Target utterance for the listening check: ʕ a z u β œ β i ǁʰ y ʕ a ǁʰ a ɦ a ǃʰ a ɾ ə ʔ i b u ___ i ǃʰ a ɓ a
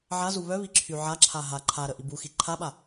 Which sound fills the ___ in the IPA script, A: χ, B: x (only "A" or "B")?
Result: B